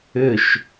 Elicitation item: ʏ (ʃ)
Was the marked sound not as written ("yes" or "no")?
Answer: no